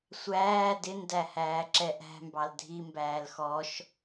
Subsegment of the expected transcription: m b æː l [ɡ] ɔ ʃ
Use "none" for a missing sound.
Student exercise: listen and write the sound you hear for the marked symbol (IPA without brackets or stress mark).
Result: x